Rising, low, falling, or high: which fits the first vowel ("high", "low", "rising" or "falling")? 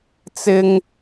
high